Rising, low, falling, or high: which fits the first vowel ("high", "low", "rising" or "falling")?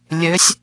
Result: rising